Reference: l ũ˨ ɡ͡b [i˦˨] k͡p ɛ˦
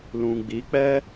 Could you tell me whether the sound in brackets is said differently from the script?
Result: yes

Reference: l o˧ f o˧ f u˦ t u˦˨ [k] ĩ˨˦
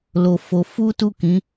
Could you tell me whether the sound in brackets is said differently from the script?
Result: no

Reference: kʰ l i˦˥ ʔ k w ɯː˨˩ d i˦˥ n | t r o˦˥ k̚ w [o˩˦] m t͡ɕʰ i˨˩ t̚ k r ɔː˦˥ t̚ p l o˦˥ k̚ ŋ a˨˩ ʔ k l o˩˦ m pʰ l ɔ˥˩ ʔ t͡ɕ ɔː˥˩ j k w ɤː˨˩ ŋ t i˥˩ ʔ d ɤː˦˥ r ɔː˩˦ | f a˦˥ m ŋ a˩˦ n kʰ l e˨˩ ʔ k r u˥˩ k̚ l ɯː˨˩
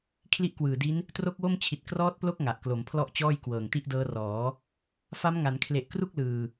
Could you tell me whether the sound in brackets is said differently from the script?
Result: yes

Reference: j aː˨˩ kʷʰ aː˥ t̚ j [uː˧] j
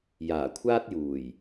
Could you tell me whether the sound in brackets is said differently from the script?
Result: yes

